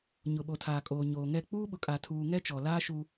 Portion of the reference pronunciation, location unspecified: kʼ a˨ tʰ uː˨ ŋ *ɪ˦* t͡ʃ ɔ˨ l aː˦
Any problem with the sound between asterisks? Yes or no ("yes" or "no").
yes